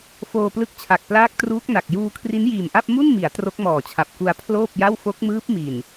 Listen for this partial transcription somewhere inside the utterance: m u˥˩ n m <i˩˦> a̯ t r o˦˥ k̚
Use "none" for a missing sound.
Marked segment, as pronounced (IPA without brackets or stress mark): i˩˦